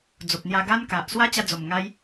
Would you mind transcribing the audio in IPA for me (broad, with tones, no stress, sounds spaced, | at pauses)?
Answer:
d͡z o˨ p̚ n̪ j a˧ ɡ a˦ n k a˨ ʔ s w a˦ t͡ɕ a˧ d͡z o˨˩ m ŋ a˧ j